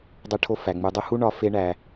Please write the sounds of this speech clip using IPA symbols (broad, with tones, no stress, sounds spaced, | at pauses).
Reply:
dˤ e˦ ʈʰ o˦ f æ˩ ŋ͡m u˨ dˤ u˥ h u˥ ɳ ɒ˦ f e˦ ɳ æ˨